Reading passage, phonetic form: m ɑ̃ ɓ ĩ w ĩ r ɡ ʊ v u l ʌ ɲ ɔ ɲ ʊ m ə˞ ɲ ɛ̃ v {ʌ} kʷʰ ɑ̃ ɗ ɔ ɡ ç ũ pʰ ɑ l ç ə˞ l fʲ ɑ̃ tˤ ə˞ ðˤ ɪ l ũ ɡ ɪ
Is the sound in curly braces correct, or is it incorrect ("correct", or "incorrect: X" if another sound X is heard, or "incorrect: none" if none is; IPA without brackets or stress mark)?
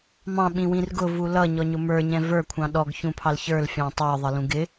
incorrect: ə˞